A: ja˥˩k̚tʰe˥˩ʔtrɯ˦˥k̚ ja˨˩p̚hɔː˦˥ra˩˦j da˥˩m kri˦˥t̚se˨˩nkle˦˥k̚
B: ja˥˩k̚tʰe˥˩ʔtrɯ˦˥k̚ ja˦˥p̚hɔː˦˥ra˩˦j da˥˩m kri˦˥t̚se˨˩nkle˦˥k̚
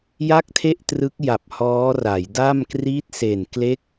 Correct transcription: A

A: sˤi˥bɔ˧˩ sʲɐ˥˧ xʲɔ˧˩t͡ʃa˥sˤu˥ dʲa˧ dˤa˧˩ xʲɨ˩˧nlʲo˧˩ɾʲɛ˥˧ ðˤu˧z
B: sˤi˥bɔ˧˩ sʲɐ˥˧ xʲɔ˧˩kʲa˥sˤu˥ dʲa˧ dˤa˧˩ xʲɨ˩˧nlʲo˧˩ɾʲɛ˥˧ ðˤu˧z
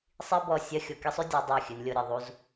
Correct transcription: B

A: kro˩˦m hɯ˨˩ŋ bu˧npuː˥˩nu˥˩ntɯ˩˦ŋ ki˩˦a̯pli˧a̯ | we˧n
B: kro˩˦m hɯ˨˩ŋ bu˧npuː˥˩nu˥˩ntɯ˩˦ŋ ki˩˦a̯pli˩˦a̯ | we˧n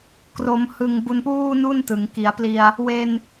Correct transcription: A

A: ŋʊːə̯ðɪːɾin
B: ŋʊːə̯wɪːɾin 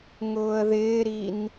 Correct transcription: A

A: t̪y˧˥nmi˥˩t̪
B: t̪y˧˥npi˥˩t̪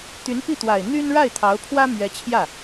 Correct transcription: B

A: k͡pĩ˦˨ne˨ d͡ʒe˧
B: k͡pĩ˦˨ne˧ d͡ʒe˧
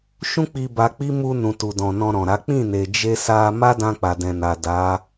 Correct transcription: A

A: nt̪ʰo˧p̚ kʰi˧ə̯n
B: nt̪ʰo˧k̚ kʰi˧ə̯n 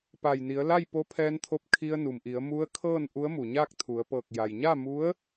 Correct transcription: A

